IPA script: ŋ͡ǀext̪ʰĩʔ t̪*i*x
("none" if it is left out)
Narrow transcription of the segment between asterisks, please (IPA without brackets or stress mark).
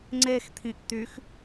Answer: y